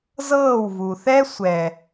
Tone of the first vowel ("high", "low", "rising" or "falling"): falling